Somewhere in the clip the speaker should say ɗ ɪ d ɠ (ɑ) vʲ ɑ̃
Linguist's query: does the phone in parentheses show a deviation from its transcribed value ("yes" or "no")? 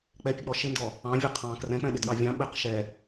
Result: no